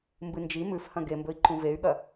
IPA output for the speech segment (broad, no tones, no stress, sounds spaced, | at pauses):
m b ɨ n d͡ʒ i m ʉ f h ɐ̃ ɡ e m b ɵ i̯ ǃ ũ v e y̯ ɠ ɐ